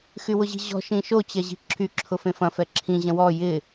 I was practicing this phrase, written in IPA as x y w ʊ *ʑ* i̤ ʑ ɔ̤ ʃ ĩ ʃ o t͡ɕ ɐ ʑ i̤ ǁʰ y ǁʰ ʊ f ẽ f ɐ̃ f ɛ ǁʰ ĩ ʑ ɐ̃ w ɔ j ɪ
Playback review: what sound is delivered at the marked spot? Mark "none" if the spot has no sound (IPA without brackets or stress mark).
ʑ